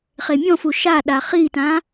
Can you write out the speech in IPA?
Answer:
χ e mʲ ɔ̃ f u ʃ a ɗ a χ i t ã

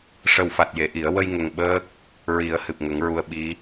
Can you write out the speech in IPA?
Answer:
ʂ ə˨˩ w f a˨˩ t̚ j e˨˩˨ ʔ i˨˩˦ ə̯ w ə˧ j ŋ ə˨˩ ŋ ɓ əː˦˥ k̚ | ɹ i˨˩˦ ə̯ h ɨ˨˩ p̚ ŋ ə˨˩˦ ŋ ɹ u˧ ə̯ ɓ i˧˥

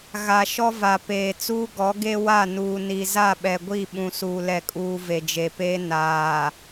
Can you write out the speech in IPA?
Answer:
ɣ a˨ ʃ ɔ˦ v a˨ p eː˨ t͡s uː˦ ɡ ɔ˨˦ ɡ e˦ w a˦˨ n uː˨ n i˨ z a˦˨ ɓ ɛ˨ ɡʷ i˦˨ ɓ ũ˨ s uː˨ l ɛ˨ kʼ uː˨ v e˨ d͡ʒ e˨ p eː˦ n aː˨

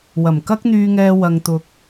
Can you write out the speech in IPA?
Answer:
w ɐ˨˩ m k ɐ˥ k̚ n̪ yː˧ ŋ ɛː˧ w ɐ˧ ŋ t̪ ʊ˧ k̚

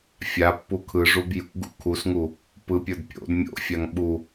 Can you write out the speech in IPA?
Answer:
fʲ a pː u kʰ ɯ ʐ u b j ṵ ɡ ṵ kʰ u s ŋ u | p ɯ pʲ ə˞ d pʲ o̰ d mʲ o̰ fʲ a ŋ ɓ u

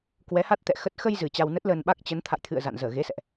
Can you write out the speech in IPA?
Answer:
k w ɛ˨˦ h a˦˥ t̚ t̪ ɛ̰˧˨ x ə˦˥ t̚ x ə˧ j z ɨ˨˩ t͡ɕ a˧ w n ə˦˥ t̚ l əː˧ n ɓ a˦˥ k̚ t͡ɕ ə˨˦ n t̪ʰ a̰˧˨ j t̪ʰ ɨ̰˧˨ ə̯ z a̰˧˨ n z əː˧˩ ɣ e˨˦ s ɛ̰˧˨ ʔ

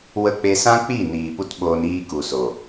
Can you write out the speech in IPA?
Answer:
w ə˧ k͡p e˧ s ã˦ k͡p i˦˨ n iː˨ p u˦ t ɓ oː˧ n iː˧ k u˨ s o˨

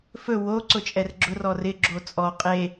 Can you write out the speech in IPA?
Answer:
f ɵ w o ǀ ʊ t͡ʃʼ ɛ r ɡ͡ǁ ʊ r ɔ r ɪ ɡ͡ǁ o t͡sʼ ɔ qʼ e

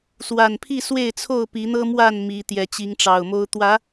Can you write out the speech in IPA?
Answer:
s w a˨˩ n pʰ i˥˨ s w e˥˨ ɪ̯ t͡sʰ o˥˨ ʊ̯ p i˨˦ n̪ ɤ˦ m w a˥˨ n m i˨˦ t̪ j ɛ˨˦ t͡ɕ i˨˦ ŋ ʈ͡ʂ ɑ˨˩ ʊ̯ m o˦ ʊ̯ t̪ w ä˨˦

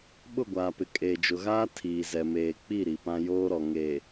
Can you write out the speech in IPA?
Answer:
ɓ ʊ˦˨ ɡʷ aː˨ p ɪ˨ kʼ eː˨ d͡ʒ ʊ˨ ɣ aː˦ tʰ iː˨ z ɛ˨ m eː˨ k͡p i˦˨ ɾ i˨ p ã˦ j oː˦ ɾ ɔ˨ ŋ e˨

